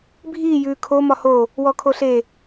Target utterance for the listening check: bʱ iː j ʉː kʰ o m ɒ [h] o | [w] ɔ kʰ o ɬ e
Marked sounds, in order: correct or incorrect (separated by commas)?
correct, correct